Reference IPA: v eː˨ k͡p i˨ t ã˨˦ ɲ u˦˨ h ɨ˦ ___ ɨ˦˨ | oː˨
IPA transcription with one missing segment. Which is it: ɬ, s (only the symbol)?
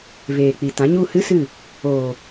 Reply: s